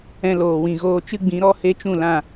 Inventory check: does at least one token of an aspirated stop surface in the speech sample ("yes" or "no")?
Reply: no